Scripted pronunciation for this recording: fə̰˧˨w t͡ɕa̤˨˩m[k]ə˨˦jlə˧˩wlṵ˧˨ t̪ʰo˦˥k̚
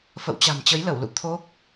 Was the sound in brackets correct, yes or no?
no